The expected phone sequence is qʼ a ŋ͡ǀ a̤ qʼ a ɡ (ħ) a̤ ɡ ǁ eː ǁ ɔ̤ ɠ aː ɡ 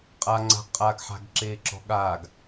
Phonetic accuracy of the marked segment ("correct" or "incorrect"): correct